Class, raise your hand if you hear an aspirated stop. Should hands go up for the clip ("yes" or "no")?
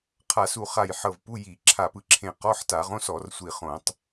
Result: yes